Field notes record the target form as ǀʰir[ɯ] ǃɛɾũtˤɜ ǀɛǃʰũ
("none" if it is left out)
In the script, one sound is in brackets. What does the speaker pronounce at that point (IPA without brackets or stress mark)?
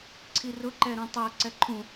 ʊ